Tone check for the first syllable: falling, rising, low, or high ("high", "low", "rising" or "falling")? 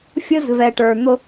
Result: high